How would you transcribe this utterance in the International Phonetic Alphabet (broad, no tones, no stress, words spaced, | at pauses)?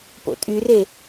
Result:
po̰tʼyre